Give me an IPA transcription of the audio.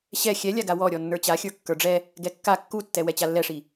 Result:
ɕ ɛ xʲ ɛ lʲ a ɡ a w ɔ ɾʲ ɔ nː ə˞ t͡ɕ a xʲ ə˞ kː ə˞ ɖ͡ʐ ɛ | ɡ ɛ kː a kː u tː ɛ w ɛ t͡ɕ a lː ɛ ʂ i

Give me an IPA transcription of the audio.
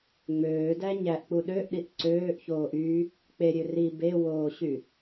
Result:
ŋ͡m øː d æ ɲ æ ʔ k͡p u ɗ ø ʔ ɗ i ʔ ǀ øː ʔ ç oː ʔ y | k͡p e ɾʲ ø r i b e w oː ɕ y

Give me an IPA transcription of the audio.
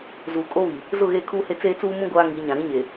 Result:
z uː˨ kʼ o˦ β i˨ | z ʊ˦˨ ɣ eː˦˨ kʰ uː˦ h e˦ t͡s eː˦ t͡s uː˦ m ũ˦ ɡʷ aː˦ ŋ i˨˦ ɲ ã˨ ɾ ĩ˦ ɲ e˨

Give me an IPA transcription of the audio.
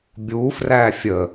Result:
bʲ u f r æ fʲ ə

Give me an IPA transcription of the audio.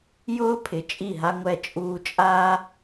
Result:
j ʊː˦ pʰ ɪ˨ t͡ʃʼ i˦˨ ɦ a˦ ŋʷ ɛ˦˨ t͡ʃʼ uː˧ t͡ʃʼ aː˦

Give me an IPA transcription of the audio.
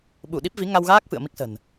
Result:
ɓ u˧˩ ɗ i˦˥ p̚ v i˨˦ ŋ a˧ w ɣ aː˦˥ k̚ f ɨ̰˧˨ ə̯ m i˦˥ k̚ s ə̤˨˩ n

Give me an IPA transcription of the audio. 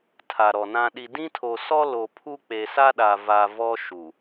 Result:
tʰ a˨ ɾ ɔ˨ n ã˦ ɗ i˦ d ĩ˦ tʰ o˨ s ɔ˦ l o˨ pʰ u˦ k͡p e˨ s a˦ ɗ a˨ v a˨ v ɔ˦ ʃ u˨

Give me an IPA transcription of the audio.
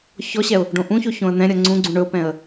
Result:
ç ɔ ɕ ɛ ʊ̯ | ɖ õ ʔ ũ ç o ç õ ə̯ n̪ ɛ̃ ɾʲ ʌ ŋ͡ǀ ũ ɡ͡ǀ ũ ɳ ɵ ʊ̯ p ɛ̃ ə̯

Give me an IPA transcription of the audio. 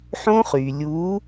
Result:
ħ õ˦˥ χ y˩ lʲ u˨˦

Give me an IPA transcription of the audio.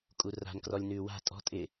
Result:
kʼ u r a̤ n k r ɔ lʲ n ʉː w a̤ tʼ ɔ̤ tʼ ɪ

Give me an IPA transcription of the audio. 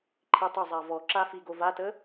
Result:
ǃʰ i tˤ ʏ zˤ a v ɔ ǁ a f i ɡ o v a t ə

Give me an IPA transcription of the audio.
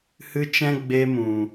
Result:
h ɨ˧ t͡ʃ ɛ̃˧ ɡ͡b e˧ m ũ˨

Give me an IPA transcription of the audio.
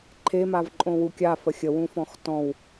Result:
ǃʰ e m a v ǃʼ õ w u kʲ a f ə xʲ ə w ũ f ɔ̃ x t ɔ̃ w

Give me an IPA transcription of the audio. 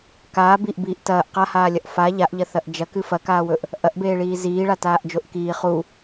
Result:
k aː b i ʔ b iː ʔ t ɐː ʔ q a h aː lʲ ɐ ʔ f a ʎ a ʔ ʎ ɐ θ ɐ ʔ d͡ʒ ɐ k ɨ f ɐ k aː w ɵ ʔ | ʔ ɐ ʔ b eː ɭ iː z iː ɭ a t aː ʔ d͡ʒ o ʔ k iː χ u

